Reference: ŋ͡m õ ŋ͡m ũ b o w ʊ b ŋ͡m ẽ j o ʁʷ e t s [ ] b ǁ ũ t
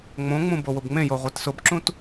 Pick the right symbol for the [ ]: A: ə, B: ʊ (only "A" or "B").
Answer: B